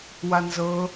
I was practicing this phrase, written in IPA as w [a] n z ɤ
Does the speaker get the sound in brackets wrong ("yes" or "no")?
no